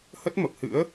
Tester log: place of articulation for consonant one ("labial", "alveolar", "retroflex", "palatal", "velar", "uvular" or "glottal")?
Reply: glottal